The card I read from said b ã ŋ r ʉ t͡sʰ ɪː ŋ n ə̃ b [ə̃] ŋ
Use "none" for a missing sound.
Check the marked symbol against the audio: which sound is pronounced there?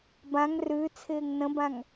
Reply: ã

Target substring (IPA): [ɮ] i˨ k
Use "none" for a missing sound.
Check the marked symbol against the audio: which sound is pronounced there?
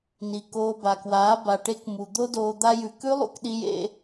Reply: n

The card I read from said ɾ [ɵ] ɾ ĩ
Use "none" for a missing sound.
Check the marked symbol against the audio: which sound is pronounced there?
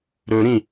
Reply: ɵ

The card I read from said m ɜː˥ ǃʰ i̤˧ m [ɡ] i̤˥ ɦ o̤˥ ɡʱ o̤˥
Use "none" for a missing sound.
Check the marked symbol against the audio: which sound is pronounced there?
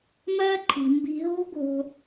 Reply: b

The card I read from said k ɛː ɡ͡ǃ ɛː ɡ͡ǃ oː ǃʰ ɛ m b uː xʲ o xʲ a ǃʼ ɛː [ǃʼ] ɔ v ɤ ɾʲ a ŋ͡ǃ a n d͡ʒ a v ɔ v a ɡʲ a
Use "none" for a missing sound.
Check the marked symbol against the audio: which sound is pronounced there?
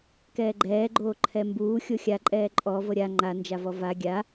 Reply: ǃʼ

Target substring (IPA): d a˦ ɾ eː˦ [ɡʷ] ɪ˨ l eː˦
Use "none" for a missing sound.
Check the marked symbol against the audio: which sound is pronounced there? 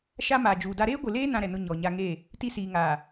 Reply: ɡʷ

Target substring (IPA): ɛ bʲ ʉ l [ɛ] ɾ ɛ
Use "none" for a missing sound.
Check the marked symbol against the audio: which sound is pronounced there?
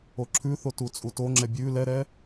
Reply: ɛ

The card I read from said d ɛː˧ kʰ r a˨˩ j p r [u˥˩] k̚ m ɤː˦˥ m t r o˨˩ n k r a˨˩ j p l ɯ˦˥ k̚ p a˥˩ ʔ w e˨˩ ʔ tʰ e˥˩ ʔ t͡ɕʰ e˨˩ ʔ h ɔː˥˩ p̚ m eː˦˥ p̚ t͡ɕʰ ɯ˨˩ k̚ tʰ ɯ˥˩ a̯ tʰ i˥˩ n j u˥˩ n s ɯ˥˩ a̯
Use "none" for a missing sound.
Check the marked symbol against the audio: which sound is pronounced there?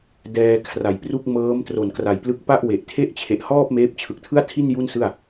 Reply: u˥˩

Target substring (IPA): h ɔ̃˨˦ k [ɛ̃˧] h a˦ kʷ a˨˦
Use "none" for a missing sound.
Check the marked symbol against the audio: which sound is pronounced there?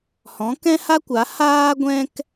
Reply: ɛ̃˦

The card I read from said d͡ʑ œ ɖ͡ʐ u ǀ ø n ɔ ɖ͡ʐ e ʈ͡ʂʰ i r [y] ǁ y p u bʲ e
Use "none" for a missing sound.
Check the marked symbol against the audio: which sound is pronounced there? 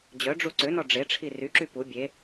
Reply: y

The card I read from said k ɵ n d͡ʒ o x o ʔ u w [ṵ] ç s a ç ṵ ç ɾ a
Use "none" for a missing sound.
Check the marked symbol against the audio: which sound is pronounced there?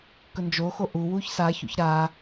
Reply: u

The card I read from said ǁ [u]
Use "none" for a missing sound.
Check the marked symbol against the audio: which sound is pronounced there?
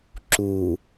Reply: u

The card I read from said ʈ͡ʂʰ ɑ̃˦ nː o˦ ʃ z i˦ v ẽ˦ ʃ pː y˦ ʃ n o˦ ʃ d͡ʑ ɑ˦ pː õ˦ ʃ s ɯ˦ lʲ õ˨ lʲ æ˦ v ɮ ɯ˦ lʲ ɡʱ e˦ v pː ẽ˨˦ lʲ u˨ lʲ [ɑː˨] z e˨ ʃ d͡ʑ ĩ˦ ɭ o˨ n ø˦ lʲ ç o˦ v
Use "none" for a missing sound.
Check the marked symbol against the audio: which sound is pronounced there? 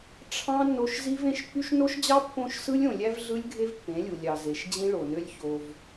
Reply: ɑ˨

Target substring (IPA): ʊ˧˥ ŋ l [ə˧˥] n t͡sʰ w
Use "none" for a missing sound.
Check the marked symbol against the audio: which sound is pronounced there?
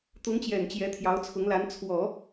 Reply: a˧˥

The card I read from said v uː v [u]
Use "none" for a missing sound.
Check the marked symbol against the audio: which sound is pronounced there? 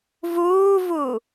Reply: u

